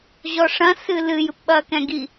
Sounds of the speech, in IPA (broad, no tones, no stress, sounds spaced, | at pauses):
ʑ ɔ ʂ ɐ̃ s ɨ l ɨ j ɨ p ɓ ɐː k ɛ̃ ɡ i